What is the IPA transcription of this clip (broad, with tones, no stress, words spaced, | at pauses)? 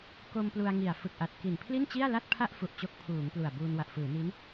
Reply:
ko˧m plu˧a̯ŋi˨˩a̯ fɯ˨˩k̚ʔa˨˩t̚ ki˨˩n pʰli˥˩nt͡ɕi˥˩a̯la˥˩t̚ pʰa˥˩ʔfu˨˩ʔ t͡ɕo˥˩k̚ pʰuː˩˦ŋ plu˨˩a̯buː˧n wa˨˩ʔfɯː˩˦ni˦˥n